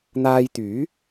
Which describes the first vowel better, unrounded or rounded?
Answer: unrounded